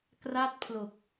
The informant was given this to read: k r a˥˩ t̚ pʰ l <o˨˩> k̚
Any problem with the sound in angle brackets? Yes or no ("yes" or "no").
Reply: no